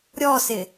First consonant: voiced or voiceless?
voiced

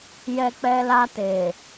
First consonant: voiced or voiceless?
voiced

